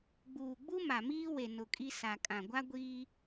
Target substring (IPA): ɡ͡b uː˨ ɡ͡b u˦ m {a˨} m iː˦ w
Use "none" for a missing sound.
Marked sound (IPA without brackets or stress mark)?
a˨